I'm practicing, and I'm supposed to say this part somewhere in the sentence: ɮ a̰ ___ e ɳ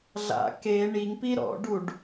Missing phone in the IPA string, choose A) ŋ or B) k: B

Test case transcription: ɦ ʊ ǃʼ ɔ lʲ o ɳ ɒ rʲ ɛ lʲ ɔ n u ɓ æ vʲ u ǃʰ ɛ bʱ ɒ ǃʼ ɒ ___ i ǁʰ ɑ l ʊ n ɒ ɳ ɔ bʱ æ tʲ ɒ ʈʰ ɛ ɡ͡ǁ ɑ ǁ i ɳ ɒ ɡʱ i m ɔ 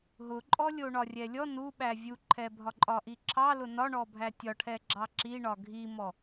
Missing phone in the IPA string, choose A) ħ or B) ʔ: B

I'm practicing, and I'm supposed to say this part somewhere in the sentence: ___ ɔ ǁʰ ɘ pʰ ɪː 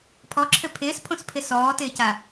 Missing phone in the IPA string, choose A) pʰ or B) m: A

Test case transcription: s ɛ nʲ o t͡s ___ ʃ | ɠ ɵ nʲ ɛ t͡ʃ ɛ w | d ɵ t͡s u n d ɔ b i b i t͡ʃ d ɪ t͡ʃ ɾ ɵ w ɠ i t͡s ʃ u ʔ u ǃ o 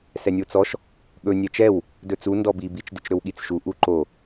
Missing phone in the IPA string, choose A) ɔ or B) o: A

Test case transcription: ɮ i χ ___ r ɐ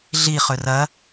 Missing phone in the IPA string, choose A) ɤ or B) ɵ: B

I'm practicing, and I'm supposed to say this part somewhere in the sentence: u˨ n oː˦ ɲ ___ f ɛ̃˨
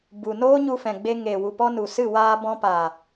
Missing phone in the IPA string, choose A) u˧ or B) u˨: A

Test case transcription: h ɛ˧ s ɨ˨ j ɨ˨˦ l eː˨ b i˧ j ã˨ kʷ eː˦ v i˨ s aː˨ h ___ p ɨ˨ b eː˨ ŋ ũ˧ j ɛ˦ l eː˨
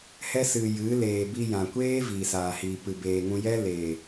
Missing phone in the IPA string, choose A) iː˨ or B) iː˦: A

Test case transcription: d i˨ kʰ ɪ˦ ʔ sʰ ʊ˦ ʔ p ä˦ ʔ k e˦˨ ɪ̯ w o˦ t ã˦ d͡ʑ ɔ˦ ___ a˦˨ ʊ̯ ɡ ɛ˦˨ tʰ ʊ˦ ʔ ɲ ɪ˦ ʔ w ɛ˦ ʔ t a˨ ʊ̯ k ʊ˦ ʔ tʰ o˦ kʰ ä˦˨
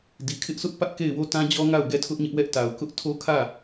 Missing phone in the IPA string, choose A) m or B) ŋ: B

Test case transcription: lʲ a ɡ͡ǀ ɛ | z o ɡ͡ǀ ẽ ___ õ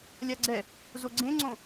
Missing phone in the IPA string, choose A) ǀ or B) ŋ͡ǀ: B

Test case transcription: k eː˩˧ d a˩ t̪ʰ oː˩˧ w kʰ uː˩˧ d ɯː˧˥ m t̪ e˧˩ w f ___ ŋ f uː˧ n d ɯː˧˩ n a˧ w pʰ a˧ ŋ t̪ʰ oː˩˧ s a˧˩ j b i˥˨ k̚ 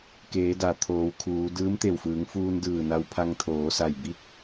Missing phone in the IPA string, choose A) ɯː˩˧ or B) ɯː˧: A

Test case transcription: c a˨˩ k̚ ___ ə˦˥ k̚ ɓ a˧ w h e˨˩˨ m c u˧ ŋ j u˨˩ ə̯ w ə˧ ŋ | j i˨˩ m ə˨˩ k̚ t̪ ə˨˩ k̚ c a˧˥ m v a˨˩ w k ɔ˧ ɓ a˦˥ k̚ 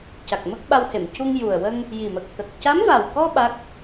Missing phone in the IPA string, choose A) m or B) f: A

